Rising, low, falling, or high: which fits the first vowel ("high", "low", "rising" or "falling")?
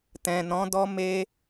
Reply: low